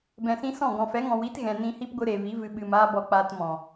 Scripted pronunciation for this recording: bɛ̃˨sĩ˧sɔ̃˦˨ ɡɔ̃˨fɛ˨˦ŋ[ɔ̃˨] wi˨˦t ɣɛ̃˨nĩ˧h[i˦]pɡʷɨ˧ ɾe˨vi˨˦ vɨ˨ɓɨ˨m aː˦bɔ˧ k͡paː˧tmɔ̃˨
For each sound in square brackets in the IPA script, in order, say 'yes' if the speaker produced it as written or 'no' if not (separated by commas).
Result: yes, yes